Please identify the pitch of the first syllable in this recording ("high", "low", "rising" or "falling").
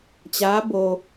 rising